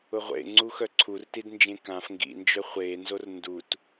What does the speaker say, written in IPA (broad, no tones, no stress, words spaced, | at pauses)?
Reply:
ʊʁʷḛŋ͡ǀu xœǀʰurtidnd͡ʒẽ kãf ŋɡḭnd͡ʒœ χʷeːnzor ndut